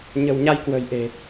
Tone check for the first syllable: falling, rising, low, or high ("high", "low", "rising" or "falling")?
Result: low